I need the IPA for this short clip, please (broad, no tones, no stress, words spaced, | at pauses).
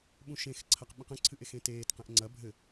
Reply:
ɓũʃẽxǀʰɐq ɓĩqə̃ǀʰɨʔ exẽteːtqɛ̃ʔ ŋ͡ǀɐ bʱɘ